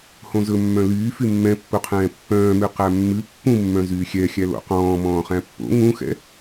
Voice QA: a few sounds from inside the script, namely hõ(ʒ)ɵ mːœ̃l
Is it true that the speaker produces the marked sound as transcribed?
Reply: no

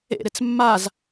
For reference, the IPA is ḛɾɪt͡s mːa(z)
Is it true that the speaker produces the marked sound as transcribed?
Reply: yes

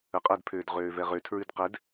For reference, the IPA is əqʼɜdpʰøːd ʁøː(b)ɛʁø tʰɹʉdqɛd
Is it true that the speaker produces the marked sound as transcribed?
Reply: no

